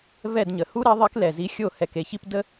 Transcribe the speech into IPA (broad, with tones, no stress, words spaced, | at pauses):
vɛ˦˨dɲə˨˩ hu˥ɾɛ˧˥ ðˤi˧˥klɛ˨˩zi˧˥ xʲo˦˨ hɛ˦˨ke˧˥çi˥p də˥